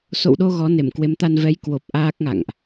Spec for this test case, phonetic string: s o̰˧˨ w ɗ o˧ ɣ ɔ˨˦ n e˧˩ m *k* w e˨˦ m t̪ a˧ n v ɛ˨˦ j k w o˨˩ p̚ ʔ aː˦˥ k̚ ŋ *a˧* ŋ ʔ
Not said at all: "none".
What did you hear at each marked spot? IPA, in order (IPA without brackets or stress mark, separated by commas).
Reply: k, a̰˧˨